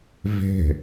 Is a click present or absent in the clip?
absent